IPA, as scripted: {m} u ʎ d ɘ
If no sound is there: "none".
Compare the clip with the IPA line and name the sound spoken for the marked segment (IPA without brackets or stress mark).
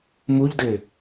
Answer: m